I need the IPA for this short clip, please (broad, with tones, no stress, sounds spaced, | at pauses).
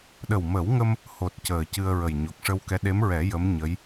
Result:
ɗ ə˨˩ w m ə˨˩˦ w ŋ ə˧ m | h o˨˩ t̚ c əː˨˩ c ɨ˧ ə̯ ɹ ə˨˩ j ɲ o˨˩ k̚ ʂ ə˧ w k ɛ˧˥ ɗ e˧˥ m ɹ ɛ˨˩˦ j ə˧˥ m ɲ ə˧˥ j